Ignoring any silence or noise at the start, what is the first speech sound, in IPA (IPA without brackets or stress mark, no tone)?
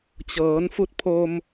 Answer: t͡ɕ